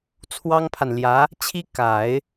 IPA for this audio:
t͡sʰ w ɑ˥ ŋ pʰ a˨ n l j ä˧˥ | t͡ɕʰ i˥ k a˨˩˦ ɪ̯

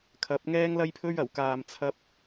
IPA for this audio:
kʰ ɐ˨˥ p̚ ŋ ɛː˥ ŋ l ɐ˥ j pʰ ɵ˥ ɥ ɐ˨˩ w k aː˨ m t͡sʰ ɐ˧ p̚

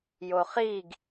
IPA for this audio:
j o χ i ɡ

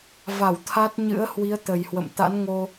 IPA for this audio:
v a˧˩ w t̪ʰ a˦˥ t̚ ɲ ɨ̰˧˥ ə̯ h w i˨˦ ə̯ t̪ ə˨˩ j h w ə̰˧˨ m t̪ a̰˧˥ n ŋ o˧

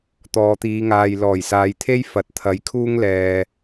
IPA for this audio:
t̪ ɔː˨ t̪ iː˨˧ ŋ aː˨ j l ɔː˨˩ j s aː˨˧ j t̪ʰ e˥ j f ɐ˨˥ t̚ t̪ʰ ɐ˨˥ j kʰ uː˥ ŋ l ɛː˨

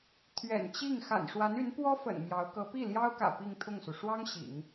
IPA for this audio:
t̪ʰ ɥ ɛ̰˨˩ n t͡ɕ i˥˩ ŋ x a̰˨˩ n ʂ w a˧˥ n y˧˥ n p w ɔ˥ f ə̰˨˩ n m j ɑ˧˥ ʊ̯ k ɤ˧˥ p i˥˩ l j ɑ˥ ʊ̯ k ä̰˨˩ p i˥˧ ŋ t̪ʰ ʊ˥˩ ŋ s u˩ ʂ w ɑ˥ ŋ ɕ ḭ˨˩˦ ŋ

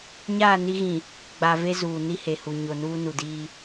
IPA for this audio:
ɲ aː˦˨ n i˦ ɣ ĩ˨ | ɡ͡b a˨ v e˦ z uː˨ n i˦ h e˨ h u˨ ɲ o˨ n uː˦ n u˨ d iː˦

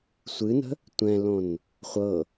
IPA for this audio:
sʷ ɨ n ə̤ | tʷ ɛ̃ l õ n | χʷ ɤ

